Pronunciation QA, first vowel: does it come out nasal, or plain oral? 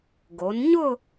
oral